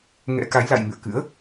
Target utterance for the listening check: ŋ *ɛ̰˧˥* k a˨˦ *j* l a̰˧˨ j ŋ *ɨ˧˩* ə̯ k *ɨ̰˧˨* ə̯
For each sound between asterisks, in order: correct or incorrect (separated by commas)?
correct, correct, incorrect, incorrect